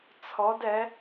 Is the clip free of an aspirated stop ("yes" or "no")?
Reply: no